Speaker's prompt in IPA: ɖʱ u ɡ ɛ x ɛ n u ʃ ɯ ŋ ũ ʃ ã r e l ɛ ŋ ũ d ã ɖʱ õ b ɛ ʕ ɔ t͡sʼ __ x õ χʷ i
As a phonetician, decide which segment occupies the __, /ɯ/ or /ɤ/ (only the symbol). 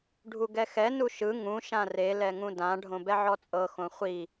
ɤ